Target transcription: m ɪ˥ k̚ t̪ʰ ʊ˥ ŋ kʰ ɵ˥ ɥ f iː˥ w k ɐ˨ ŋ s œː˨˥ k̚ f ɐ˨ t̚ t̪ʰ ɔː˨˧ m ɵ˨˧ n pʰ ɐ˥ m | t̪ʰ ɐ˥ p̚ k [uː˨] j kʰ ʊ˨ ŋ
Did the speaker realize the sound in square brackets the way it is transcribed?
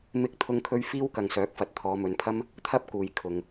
yes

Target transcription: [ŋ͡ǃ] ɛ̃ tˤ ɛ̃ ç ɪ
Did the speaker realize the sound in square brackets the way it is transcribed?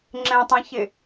no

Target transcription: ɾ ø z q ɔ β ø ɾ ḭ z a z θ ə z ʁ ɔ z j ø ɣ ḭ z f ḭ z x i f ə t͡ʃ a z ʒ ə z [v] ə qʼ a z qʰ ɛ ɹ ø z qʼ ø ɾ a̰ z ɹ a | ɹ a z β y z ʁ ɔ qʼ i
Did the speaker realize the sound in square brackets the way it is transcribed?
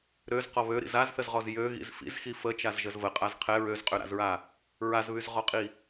yes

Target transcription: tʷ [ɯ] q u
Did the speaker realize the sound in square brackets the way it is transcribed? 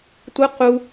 yes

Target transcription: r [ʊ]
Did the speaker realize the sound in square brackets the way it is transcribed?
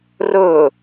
no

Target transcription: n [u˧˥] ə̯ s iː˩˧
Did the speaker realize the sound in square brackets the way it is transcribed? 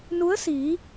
yes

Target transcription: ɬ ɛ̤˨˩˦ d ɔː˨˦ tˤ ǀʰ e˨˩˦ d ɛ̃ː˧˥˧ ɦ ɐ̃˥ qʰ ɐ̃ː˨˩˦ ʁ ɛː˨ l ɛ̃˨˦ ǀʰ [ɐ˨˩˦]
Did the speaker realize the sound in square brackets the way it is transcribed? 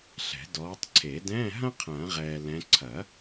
yes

